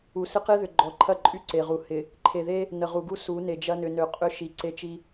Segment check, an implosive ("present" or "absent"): absent